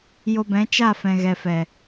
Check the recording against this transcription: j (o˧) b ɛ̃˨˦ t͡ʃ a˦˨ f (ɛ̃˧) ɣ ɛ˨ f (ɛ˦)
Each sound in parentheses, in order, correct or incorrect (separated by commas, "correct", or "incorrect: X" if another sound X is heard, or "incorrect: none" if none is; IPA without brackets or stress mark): correct, incorrect: ɛ̃˨, incorrect: ɛ˨